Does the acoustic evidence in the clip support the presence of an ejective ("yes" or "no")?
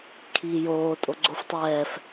yes